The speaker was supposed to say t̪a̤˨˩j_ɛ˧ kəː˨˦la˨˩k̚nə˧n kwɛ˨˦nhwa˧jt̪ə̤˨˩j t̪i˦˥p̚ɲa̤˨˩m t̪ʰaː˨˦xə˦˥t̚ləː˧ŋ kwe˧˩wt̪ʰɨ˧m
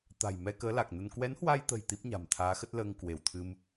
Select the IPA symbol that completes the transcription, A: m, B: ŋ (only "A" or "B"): A